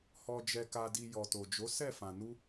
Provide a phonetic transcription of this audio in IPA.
h ɔ˨ d͡ʒ ɛ˨ k a˨ d i˨ j ɔ˨ t o˨ d͡ʒ o˨˦ s ɛ˦˨ f ã˨ n u˧

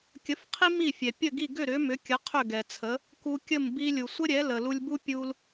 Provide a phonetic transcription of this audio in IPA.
kʲ ə˩˥ f qʰ i˥ m i˥˩ fʲ ɛ˩ pʲ ə˥˩ ɡ i˥˩ ɡ ʏ˥˩ ɾ ʏ˩˥ m ʏ˩˥ kʲ ə˩˥ qʰ ʏ˥˩ ɡ ɛ˩ t͡sʰ ə˩˥ | k u˧ kʲ ə˥˩ m b i˧ lʲ u˩ sʷ ə˥ ɾʲ ɛ˩˥ l ə˩ l u˧ lʲ b u˥ pʲ u˧ l

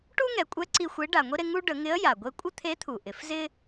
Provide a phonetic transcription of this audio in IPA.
ʈ u˥ ŋ ɛ˩˧ kʷʼ ɛ˧˥ ǀ i˧ xʷ e˧˥ ɖ a˩ ŋʷ i˥ ɾ e˧ ŋ u˥ ɖ ə˩˧ ŋ ɪ˧˥ ə̯ j a˩ ɡʷ e˧ kʷʼ ə˥ t̪ʰ e˧˥ t̪ʰ u˩ ʔ ɪ˩˧ f z ɪ˥

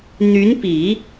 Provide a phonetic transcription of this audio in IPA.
n̪ y˧˥ n p i˨˩˦

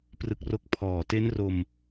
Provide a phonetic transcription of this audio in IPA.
p r ɯ˦˥ k̚ r o˥˩ k̚ pʰ ɔː˨˩ t e˦˥ n r o˧ m

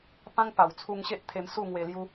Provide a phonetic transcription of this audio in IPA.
p ã˦ ŋ p a˨˩ w t͡sʰ u˧ ŋ ɕ e˦ ʔ t̪ʰ e˧ m s u˥˧ ŋ w e˧ l j u˦

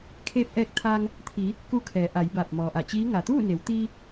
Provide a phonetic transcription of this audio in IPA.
kʰ eː˧ p̚ ʔ ɛː˧ k̚ t̪ʰ aː˧ ŋ | t̪ʰ i˩˧ | k u˧ kʰ ɛː˩˧ ʔ a˩˧ j b aː˧˩ p̚ m ɔː˩ ʔ a˧˩ t͡ɕ iː˧˥ ŋ a˩ t̪ uː˥˨ n e˩˧ w t̪ iː˧

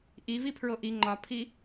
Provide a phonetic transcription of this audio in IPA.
ʔ i v i pʰ ɹ o ʔ i ŋ͡ǃ ɒ pʰ i

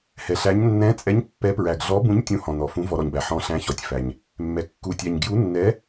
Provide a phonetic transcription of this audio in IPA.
h ɛ˨ ɬ æ˧˥ ɲ nː ɛ̃˧˥ t͡sʼ ɛ˧˥ ɲ pː ɛ˧˥ p ɹ æ˨ ɡ ɮ ɔ˧˥ b ũ˧˥ ɲ tʲ ũ˧˥ h ɔ̃˨ n ɔ˨ f ũ˧˥ v ɔ˨ ɾ ɔ˨ ɲ b æ˨ ħ ɔ̃˧˥ ɬ æ̃˧˥ ç ɔ˨ tʲ f æ˨ ɲ | mː ɛ˨ kː u˨ tʲ æ˨ ɲ ɡ j u˧˥ nː ɛ˧˥

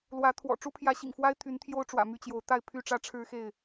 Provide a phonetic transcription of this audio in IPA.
l w ä˨˦ t̪ʰ w ɔ̰˨˩ ʈ͡ʂ u˦ pʰ j ä˨˦ ɕ ḭ˨˩ ŋ f w a˦ ɪ̯ t̪ʰ y˨˦ n t̪ʰ j o˦ ʊ̯ ʈ͡ʂ w ä̰˨˩ m y˥˨ t͡ɕ j o˨˦ ʊ̯ t̪ a˥˨ ɪ̯ pʰ y˥˨ ʈ͡ʂ ä˦ ʈ͡ʂʰ ɻ̩˦ x e˥˨ ɪ̯

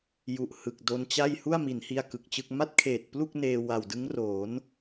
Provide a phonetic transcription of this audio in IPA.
j u˨˩ ʔ h ɯ˨˩ k̚ d o˧ n t͡ɕ a˥˩ j h u˥˩ a̯ m i˩˦ n h i˧ a̯ k ɯ˨˩ k̚ t͡ɕ ɯ˥˩ k̚ m a˥˩ t̚ kʰ eː˨˩ t̚ p l u˥˩ k̚ n eː˧ w a˨˩ w d ɯ˦˥ ŋ r oː˩˦ n

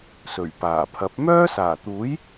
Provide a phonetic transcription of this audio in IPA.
s ɵ˨˩ ɥ p aː˨˩ pʰ ɐ˨˥ p̚ m œː˥ s aː˨˩ t̪ uː˨˥ j

